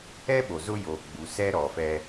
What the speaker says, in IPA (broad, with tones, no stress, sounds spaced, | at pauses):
ɛ˦ ɓ o˨ z ʊ˦ j o˨ ɡ͡b u˨ s ɛ˦ ɾ ɔ˨ f ɛ˦